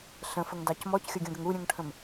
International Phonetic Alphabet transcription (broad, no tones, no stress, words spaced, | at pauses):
ɬə̃fəŋdɑc mɔcxʲɔɡʲũɡəŋ uɾʲũŋʈʰə̃m